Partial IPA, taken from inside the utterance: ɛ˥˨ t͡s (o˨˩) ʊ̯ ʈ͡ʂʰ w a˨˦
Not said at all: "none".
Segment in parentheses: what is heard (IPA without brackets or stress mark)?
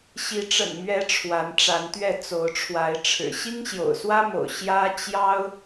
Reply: o˨˦